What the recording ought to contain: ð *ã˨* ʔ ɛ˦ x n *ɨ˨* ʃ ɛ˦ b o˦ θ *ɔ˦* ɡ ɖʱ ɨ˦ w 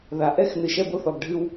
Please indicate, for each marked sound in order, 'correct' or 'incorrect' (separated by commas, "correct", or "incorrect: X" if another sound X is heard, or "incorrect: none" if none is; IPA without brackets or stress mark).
incorrect: a˨, correct, incorrect: ɔ˨